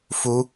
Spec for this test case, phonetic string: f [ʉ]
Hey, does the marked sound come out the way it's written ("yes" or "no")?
no